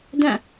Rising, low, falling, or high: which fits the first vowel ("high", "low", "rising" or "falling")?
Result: falling